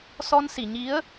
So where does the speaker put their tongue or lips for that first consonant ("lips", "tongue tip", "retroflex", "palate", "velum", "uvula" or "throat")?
tongue tip